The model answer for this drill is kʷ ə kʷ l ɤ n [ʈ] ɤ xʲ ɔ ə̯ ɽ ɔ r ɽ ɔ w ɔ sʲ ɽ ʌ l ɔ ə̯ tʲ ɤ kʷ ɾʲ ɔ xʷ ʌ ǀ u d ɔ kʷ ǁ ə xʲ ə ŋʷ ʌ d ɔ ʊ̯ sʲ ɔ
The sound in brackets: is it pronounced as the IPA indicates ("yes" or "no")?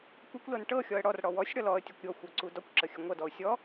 yes